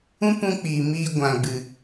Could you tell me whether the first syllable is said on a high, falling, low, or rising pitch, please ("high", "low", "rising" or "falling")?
high